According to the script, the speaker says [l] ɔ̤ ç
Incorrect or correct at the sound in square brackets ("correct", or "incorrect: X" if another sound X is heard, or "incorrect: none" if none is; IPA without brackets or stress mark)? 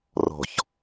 incorrect: r